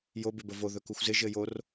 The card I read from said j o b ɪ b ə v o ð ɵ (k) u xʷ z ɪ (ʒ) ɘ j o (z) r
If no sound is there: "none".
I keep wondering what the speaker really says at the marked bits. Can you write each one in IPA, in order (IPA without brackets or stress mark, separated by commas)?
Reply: k, ʒ, none